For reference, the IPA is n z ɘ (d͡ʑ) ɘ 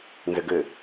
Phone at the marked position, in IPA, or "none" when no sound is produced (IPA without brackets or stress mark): ɡ